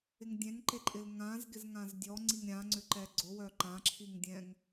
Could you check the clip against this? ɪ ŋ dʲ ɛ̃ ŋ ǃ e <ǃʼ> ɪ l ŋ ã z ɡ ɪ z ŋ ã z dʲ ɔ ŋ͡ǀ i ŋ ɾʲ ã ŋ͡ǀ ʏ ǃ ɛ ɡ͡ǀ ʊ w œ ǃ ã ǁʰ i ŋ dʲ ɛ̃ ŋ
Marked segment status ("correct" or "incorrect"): correct